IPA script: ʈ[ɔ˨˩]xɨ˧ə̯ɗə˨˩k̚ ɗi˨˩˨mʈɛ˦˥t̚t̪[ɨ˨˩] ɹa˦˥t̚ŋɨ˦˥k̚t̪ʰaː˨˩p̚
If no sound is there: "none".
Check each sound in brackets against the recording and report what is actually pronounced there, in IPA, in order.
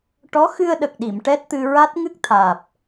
ɔ˧˥, ɨ˧

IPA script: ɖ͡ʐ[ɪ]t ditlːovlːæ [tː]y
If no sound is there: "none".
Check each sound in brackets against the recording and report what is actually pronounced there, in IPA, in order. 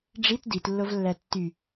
i, tː

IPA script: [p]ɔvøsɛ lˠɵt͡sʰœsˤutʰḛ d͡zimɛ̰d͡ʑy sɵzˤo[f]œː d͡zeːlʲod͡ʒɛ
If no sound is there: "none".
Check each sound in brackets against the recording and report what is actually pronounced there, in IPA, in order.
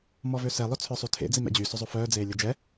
m, f

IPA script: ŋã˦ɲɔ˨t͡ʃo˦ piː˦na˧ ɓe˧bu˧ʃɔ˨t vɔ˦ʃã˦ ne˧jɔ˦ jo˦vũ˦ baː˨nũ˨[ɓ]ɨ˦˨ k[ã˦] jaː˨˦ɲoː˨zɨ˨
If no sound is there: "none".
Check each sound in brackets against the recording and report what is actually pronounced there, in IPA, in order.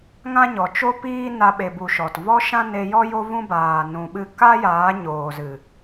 ɓ, a˦

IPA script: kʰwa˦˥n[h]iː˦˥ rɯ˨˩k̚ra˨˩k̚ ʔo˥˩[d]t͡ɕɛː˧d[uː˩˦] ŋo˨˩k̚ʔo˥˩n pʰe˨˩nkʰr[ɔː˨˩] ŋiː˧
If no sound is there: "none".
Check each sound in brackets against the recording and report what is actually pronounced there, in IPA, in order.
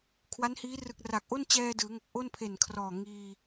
h, n, ɯː˩˦, ɔː˨˩

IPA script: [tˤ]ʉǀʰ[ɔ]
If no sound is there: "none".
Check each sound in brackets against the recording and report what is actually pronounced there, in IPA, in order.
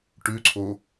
ʈ, o

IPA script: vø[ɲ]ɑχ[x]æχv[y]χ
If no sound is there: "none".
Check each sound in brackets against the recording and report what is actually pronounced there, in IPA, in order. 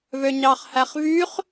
ɲ, h, y

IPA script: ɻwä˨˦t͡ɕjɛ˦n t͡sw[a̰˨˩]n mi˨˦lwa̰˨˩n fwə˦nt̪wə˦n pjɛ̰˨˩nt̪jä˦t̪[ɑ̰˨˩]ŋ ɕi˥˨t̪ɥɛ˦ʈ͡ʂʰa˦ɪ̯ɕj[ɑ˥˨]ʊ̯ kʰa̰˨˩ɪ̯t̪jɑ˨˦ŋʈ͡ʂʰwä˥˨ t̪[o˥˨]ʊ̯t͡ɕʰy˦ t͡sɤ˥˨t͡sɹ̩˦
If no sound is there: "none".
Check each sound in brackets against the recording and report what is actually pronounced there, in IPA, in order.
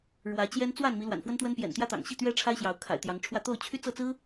a˥˨, ɑ̰˨˩, ɑ˨˦, o˥˨

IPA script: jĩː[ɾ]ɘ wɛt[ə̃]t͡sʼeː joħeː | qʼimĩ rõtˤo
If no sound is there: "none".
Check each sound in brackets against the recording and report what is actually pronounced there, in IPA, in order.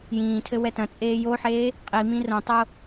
tʰ, ɐ̃

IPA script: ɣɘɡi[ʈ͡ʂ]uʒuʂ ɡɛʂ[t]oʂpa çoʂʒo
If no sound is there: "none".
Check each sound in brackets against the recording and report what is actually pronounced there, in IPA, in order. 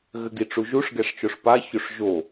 ʈ͡ʂ, t͡ʃ

